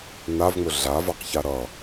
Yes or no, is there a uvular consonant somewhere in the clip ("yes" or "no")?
yes